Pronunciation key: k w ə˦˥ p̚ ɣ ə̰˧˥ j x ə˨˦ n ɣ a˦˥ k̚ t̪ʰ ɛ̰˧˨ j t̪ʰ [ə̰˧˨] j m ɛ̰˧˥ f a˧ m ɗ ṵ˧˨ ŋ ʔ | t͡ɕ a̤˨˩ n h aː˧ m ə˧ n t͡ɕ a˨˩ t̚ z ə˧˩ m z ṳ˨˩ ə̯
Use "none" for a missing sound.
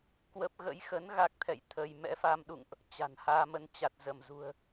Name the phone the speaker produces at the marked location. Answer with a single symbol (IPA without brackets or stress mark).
ə˧